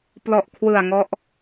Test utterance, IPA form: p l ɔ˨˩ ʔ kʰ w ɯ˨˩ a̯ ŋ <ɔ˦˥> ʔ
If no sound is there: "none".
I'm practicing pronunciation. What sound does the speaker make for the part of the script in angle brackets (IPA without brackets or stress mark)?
ɔ˦˥